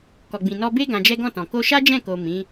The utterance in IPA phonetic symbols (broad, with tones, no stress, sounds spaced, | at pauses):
k ɔ˨ ɡ͡b ĩ˨ n ɔ˧ b e˦ ɡ ã˧ d͡ʒ ɛ˦ ɡ ɔ̃˦˨ t ɔ̃˨ k o˧ ʃ a˦ d͡ʒ ɛ̃˦˨ k o˨ m ĩ˨˦